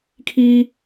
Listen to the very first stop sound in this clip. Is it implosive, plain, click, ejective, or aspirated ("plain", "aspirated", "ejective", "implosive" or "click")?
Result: aspirated